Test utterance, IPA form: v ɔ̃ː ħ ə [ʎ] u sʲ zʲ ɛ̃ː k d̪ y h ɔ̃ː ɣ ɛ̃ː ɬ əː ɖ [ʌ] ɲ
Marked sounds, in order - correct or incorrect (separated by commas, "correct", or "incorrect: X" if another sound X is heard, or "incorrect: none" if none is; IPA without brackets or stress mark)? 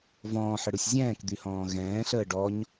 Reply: incorrect: ɽ, incorrect: ɔ